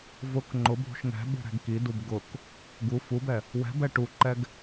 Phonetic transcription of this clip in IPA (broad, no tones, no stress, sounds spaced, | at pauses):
v ʊ k ŋ͡ǃ ʊ bʱ ṳ ʃ ŋ ɛ̤ ɓ ṳ ɾ ɛ̤ ɡ k i d u b ɡ ʊ k | ɡ u f u b ɛ | w ɛ̤ b ɛ ʈ u ǃ ɛ ɡ